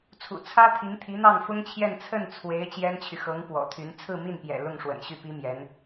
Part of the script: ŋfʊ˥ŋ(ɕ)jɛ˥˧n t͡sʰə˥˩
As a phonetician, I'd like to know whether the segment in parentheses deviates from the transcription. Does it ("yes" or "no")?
yes